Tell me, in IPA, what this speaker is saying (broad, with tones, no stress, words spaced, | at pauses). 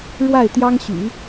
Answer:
ɻwa˥˩ɪ̯t̪jɑ˥ŋɕy̰˨˩˦